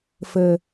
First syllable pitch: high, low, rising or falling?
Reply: low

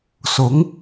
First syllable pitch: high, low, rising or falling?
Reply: rising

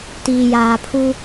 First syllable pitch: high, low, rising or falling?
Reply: low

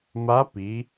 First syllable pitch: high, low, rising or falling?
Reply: rising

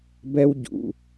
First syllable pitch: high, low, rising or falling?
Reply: high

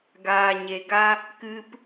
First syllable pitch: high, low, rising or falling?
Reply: low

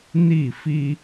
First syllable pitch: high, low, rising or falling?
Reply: falling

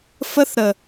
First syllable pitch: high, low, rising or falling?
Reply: high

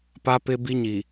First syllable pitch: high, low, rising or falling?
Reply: high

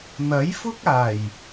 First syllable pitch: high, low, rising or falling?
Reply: rising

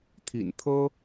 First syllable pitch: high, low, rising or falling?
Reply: low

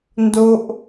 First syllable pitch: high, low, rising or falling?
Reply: high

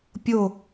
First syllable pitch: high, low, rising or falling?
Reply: falling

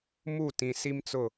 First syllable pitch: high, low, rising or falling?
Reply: falling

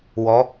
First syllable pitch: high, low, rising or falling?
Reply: rising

